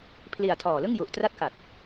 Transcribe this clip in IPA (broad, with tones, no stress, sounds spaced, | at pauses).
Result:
pʰ l i˨˩ a̯ tʰ ɔː˨˩ l ɯ˥˩ ŋ j u˨˩ ʔ t r a˦˥ t̚ k a˨˩ t̚